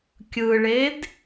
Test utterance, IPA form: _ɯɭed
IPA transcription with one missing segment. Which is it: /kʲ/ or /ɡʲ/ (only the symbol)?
kʲ